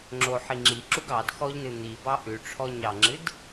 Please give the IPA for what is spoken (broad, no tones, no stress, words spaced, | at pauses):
ŋ͡ǁoħi ŋ͡ǁiǁuɡ ɑd xɔʎnɨ n̪ibɑ ʔʉʈ͡ʂʰɔ ɲɑŋ͡ǁɨd